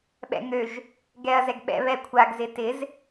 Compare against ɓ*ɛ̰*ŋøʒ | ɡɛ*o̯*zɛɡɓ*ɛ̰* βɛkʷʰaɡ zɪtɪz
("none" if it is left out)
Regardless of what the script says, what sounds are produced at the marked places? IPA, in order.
ɛ̰, ɐ̯, ɛ̰

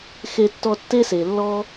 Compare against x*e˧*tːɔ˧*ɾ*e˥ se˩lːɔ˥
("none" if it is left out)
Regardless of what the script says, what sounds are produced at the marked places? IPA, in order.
e˧, tː

